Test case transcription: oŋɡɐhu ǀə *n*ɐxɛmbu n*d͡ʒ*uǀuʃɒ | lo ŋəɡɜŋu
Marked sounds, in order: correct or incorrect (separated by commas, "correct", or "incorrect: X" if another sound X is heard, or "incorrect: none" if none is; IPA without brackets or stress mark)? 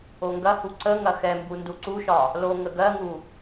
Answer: incorrect: ŋ, incorrect: d